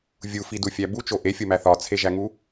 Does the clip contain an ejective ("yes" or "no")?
no